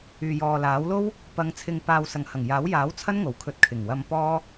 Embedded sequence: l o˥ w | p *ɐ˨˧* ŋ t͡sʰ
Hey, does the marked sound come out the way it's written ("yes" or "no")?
yes